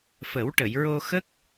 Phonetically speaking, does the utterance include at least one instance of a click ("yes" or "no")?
no